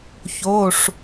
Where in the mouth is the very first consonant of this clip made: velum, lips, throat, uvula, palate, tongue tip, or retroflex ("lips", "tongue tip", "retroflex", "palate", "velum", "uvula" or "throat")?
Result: palate